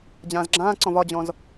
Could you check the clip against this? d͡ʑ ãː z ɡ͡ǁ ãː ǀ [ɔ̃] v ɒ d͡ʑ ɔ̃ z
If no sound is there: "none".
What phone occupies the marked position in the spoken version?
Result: ɔ̃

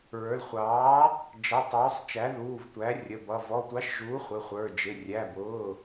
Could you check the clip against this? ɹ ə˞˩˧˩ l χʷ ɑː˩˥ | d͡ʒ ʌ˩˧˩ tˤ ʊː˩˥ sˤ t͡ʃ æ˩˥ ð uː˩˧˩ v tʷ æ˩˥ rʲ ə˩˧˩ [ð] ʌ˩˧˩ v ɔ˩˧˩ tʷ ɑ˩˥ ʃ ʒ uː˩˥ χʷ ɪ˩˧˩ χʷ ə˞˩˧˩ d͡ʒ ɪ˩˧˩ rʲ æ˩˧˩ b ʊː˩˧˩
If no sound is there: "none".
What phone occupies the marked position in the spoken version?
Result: b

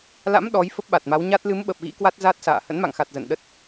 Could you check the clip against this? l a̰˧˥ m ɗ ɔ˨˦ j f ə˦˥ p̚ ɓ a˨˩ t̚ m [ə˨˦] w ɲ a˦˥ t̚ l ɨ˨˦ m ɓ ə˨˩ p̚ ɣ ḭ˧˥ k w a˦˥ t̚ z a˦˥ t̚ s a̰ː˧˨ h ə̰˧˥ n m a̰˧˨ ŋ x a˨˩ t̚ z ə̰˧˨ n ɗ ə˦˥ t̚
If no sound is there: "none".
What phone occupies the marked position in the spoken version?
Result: a˨˦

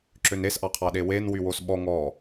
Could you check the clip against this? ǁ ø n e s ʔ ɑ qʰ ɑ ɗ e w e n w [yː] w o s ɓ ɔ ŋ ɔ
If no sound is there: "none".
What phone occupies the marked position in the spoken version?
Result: y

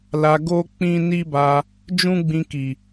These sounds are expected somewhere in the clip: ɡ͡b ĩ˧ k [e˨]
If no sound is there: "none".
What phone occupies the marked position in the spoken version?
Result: i˨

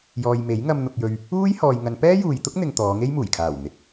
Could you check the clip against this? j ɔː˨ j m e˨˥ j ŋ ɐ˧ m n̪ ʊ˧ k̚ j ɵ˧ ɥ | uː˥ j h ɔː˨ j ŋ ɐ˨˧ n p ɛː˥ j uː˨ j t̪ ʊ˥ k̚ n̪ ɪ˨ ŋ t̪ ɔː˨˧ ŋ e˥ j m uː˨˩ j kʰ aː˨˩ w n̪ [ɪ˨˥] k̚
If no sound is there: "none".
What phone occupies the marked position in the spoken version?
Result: ɪ˨˥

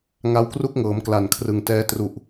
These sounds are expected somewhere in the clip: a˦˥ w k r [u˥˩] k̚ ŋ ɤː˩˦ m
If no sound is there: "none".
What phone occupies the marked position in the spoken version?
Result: u˥˩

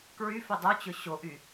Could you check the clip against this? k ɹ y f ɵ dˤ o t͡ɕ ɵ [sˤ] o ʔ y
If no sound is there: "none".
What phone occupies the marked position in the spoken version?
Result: ɕ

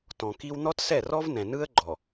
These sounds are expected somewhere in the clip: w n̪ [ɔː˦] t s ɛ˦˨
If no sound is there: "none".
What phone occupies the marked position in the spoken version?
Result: ɔ˦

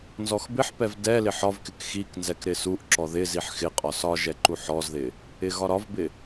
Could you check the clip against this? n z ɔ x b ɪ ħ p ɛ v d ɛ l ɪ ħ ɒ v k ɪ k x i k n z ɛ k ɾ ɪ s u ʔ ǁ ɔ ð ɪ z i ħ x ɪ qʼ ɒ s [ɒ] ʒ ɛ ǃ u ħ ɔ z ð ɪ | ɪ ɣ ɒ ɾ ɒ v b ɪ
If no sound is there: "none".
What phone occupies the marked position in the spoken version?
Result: ɒ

